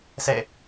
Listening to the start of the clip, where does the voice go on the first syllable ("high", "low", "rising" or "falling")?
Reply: falling